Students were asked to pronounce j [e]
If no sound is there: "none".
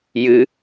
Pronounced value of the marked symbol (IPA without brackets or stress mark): ɨ